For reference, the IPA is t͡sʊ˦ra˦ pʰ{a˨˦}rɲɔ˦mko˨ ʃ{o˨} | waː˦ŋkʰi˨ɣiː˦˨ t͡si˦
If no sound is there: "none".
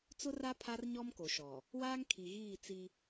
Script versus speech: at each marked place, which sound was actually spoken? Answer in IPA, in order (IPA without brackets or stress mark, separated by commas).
a˦, ɔ˨